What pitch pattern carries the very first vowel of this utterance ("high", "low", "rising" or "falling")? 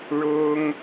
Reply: high